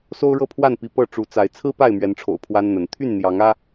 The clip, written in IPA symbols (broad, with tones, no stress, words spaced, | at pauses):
so˦ʊ̯ɻɤ˥˨pʰwa˥˨npi˨˦ pɤ˥˨ ʈ͡ʂu˨˦t͡sa˨˦ɪ̯ t͡sʰɹ̩˦ pa˥˨ɪ̯mɥɛ˨˦nʈ͡ʂʰo̰˨˩ʊ̯ pʰwa˦nn̪ə˨˦n t̪ʰy˥˨nn̪jɑ˨˦ŋä˦